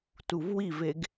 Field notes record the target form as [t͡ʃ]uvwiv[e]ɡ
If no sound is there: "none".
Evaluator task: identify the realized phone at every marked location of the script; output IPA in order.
t, e

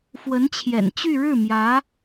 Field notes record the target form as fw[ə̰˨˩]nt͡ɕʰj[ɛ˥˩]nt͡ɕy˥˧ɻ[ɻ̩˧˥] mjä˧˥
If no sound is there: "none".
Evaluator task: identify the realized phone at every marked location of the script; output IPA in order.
ə˧˥, ɛ̰˨˩, ɻ̩˥˩

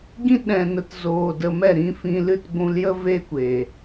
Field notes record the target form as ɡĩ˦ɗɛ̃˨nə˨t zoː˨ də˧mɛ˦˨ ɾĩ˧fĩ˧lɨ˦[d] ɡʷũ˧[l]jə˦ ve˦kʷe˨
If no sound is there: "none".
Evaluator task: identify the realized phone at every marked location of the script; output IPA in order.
t, l

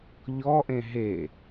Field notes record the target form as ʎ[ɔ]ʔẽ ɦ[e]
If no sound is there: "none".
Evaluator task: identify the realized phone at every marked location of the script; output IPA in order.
ɔ, e

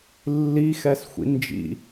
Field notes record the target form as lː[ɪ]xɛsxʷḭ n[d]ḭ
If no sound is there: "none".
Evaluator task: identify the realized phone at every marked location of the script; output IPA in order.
i, d͡ʒ

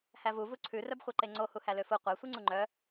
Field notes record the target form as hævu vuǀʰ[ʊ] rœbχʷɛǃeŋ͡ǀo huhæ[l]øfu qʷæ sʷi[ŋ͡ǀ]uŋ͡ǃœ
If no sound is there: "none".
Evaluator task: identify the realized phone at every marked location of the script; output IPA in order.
ʉ, l, ŋ͡ǀ

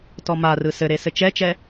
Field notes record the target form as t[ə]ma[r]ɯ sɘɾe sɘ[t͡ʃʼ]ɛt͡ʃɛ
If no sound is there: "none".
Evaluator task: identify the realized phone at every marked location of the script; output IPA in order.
ɔ, r, t͡ʃ

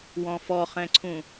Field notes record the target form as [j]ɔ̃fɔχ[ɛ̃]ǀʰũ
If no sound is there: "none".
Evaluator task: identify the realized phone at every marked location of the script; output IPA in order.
w, ɛ̃

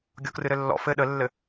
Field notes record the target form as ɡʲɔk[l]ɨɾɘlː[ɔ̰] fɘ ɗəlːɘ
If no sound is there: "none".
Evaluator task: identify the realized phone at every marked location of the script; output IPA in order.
r, ɔ̰

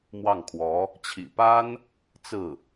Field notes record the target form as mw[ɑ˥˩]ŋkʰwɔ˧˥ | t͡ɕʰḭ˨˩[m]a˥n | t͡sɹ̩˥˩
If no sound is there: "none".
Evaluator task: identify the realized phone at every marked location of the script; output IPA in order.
ɑ˥˩, p

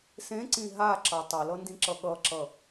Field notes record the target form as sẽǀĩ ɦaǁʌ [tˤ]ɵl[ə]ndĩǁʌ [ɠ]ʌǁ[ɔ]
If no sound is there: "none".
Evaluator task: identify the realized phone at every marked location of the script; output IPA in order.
tˤ, ʌ, ɠ, ʌ

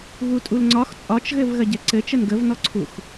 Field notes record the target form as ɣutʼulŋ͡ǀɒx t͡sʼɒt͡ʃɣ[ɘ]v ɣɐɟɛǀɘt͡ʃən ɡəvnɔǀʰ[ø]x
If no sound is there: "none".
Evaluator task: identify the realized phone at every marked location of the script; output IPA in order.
ɘ, u

